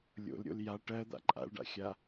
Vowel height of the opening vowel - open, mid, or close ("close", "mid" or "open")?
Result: mid